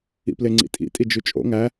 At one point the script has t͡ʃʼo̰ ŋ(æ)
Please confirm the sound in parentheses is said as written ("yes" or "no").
yes